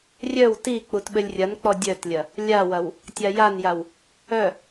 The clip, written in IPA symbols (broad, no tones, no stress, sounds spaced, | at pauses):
rʲ œ w t i k͡p u t ɓ ɘ lʲ rʲ ɐ n k͡p ɔ dʲ œ t lʲ ɐ | lʲ a w ɐ w | tʲ a j a n j a w | œ